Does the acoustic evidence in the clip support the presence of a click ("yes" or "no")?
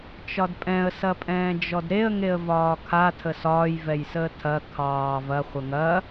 no